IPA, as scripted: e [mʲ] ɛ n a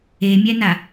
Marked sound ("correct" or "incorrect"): correct